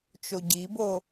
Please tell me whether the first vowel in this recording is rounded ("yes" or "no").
yes